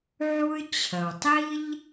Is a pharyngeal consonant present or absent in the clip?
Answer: present